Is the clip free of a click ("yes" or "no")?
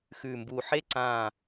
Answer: no